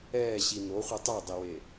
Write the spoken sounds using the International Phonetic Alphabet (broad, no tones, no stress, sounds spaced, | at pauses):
ɛː ɕ i n o χʷ i tˤ a dˤ e w eː